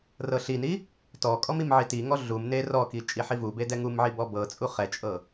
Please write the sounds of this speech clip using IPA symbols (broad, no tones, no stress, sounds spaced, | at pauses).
r ɤ ɬ i n i | t ɔ kʼ ɔ m i m ʕ i t i ŋ ɔ ɮ u m n e r ɔ k i t͡ʃʼ i ħ i v u b e d ɛ ŋ u m ʕ i b ɔ b ɤ t͡sʼ u χ ɛ t͡ʃʼ ɤ